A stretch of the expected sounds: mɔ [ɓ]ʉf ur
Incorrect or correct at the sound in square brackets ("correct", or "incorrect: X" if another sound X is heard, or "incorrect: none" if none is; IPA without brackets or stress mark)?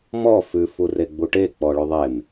incorrect: f